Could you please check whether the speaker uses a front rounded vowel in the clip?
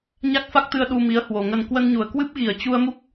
no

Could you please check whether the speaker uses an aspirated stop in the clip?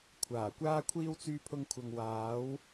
yes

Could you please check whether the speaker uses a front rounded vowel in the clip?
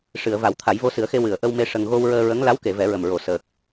no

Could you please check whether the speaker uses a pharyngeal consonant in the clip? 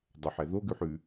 yes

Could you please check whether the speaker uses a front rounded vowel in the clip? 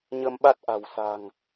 no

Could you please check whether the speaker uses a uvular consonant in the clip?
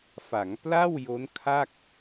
no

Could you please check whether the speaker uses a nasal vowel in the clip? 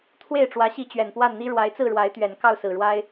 no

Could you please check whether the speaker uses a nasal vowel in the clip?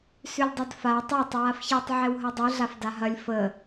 no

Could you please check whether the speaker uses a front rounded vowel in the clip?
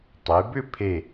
yes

